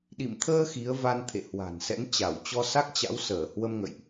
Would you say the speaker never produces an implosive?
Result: no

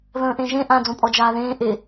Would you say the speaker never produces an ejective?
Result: no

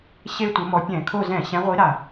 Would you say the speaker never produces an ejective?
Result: yes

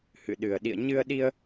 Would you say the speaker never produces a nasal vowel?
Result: yes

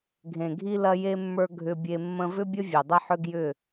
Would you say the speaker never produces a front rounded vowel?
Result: no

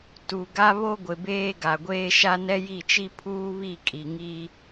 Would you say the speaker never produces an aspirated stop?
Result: no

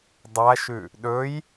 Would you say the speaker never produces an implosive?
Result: no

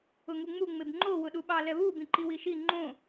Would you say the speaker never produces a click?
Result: no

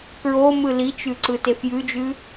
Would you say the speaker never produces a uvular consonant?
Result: yes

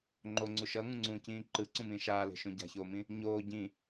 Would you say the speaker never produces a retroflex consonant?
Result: yes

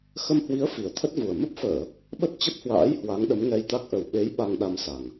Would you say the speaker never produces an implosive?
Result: no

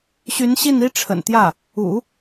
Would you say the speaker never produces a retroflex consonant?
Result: no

